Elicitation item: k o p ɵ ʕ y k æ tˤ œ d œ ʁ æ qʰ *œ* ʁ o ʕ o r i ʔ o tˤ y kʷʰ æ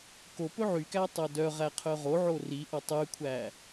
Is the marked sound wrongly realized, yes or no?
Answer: no